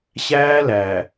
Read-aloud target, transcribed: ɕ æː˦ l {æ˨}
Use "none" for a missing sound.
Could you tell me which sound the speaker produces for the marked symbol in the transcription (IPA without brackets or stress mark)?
æ˨